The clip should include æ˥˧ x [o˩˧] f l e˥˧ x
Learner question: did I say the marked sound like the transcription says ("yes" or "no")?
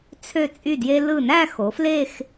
yes